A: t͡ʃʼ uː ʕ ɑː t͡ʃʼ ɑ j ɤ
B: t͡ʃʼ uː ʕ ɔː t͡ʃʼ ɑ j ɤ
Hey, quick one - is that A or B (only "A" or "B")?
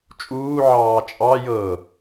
A